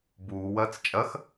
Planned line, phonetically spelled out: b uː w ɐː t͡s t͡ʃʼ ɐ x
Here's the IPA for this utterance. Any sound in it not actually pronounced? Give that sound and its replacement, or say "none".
none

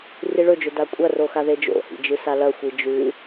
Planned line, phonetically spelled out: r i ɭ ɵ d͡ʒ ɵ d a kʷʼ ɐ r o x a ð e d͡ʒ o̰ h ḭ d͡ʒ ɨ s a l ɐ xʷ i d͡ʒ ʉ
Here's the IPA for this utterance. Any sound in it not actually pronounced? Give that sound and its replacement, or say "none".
none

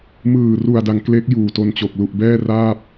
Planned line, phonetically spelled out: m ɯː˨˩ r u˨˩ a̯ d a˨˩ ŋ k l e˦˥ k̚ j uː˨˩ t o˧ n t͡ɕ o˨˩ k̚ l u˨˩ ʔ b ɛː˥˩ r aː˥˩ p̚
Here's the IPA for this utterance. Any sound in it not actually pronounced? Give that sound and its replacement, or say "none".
none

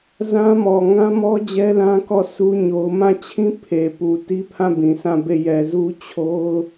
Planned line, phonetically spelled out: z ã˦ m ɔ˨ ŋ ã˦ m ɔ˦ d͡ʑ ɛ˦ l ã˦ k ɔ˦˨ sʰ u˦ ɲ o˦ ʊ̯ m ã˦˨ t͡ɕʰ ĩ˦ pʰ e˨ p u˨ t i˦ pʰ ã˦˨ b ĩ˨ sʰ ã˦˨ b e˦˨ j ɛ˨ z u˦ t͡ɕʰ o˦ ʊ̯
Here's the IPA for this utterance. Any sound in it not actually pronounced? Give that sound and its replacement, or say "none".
none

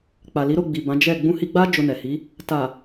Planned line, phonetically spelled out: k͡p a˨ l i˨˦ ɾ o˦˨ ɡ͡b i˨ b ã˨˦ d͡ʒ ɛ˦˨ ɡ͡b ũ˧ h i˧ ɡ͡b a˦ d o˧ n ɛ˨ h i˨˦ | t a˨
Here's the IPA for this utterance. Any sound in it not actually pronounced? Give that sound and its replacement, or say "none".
d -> d͡ʒ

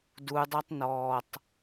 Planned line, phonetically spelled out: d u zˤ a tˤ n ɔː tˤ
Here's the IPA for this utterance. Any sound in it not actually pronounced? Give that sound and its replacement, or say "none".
zˤ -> dˤ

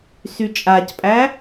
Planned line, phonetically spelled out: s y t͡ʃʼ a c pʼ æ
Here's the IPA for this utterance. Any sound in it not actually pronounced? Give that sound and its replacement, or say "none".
none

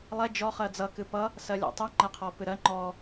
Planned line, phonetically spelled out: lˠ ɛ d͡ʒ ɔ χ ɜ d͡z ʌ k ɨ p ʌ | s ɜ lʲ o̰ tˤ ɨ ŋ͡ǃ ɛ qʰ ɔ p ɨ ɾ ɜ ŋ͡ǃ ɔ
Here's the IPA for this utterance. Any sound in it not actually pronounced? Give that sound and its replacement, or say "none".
none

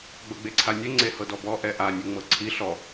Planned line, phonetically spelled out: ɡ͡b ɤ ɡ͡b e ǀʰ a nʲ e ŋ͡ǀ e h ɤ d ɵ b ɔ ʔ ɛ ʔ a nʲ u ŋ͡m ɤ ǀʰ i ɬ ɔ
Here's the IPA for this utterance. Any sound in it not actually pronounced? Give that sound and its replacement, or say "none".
ɵ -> ɔ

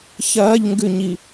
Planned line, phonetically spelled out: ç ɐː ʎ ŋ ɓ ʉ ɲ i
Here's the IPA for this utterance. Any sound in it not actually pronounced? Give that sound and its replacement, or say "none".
ɓ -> ɡ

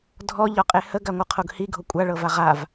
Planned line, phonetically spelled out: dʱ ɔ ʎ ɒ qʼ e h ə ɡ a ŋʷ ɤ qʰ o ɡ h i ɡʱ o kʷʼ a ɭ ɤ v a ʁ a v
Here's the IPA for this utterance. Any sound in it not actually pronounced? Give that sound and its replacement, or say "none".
none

